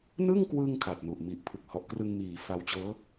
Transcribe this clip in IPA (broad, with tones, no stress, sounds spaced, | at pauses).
n ɯ˥˩ ŋ k w ɯ˧ ŋ kʰ a˨˩ t̚ n u˨˩ ʔ m i˨˩ ʔ pʰ ɯ˨˩ k̚ h ɔ˨˩ ʔ k r ɯ˧ ŋ m iː˩˦ f a˧ w t͡ɕ ɤː˦˥